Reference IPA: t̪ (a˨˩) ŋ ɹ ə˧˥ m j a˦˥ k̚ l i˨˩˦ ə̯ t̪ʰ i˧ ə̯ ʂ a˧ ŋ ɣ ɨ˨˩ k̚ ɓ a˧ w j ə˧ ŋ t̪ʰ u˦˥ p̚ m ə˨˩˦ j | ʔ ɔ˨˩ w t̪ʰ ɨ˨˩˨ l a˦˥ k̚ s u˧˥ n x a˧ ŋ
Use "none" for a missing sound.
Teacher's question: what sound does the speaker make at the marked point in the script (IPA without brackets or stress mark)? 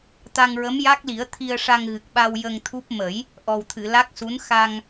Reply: a˧